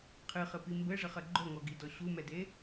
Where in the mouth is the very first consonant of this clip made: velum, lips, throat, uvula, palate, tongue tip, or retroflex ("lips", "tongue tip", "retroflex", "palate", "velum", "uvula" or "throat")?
uvula